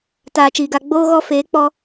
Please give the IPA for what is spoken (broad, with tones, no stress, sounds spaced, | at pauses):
t aː˨ t͡ʃ iː˨ ɡ a˧ ɡ͡b oː˧ ɣ ɔ˧ f eː˨˦ k͡p ɔ˧